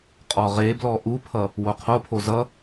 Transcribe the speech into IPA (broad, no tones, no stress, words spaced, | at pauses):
qʼɔʁeblɔ ʔupʰʌ | woqʰopʰo zʌ